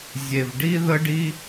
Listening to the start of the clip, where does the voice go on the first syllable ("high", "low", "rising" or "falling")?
low